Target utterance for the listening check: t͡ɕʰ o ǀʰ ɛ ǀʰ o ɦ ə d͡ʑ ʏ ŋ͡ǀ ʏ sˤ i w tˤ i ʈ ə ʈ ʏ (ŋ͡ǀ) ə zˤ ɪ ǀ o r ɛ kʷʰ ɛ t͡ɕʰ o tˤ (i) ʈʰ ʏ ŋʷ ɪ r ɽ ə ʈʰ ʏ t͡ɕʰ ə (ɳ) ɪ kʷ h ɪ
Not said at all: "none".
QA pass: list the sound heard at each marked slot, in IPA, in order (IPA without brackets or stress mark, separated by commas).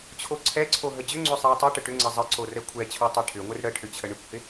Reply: ŋ͡ǀ, e, ɳ